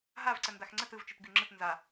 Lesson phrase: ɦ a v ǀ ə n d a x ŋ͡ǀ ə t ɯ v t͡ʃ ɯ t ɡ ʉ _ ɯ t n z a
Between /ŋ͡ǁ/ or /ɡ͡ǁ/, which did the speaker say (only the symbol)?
ŋ͡ǁ